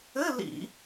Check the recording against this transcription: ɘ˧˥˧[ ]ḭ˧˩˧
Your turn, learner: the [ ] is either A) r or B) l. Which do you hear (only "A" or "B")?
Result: B